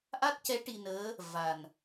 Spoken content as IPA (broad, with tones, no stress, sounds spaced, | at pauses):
ʔ a˦˥ t̚ c ɛ˧˥ ʈ i˧ n əː˧˥ | v a˨˩ n